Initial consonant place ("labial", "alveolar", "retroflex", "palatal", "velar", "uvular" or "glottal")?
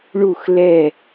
retroflex